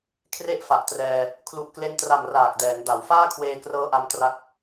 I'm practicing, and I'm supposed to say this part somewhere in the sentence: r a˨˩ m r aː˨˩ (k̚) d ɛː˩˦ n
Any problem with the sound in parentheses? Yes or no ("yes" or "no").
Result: no